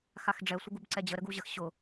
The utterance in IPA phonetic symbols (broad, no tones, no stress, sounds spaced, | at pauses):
x a x ɖ͡ʐ ɛ sʷ ə ɡ u b ǀ ɛ d͡ʑ ə ɾ ə ɡ u ʑ ə x ɕ ʊ